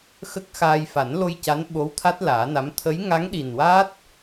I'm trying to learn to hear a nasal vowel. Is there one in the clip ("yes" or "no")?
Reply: no